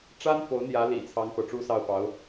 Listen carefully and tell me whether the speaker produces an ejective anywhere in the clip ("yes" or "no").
no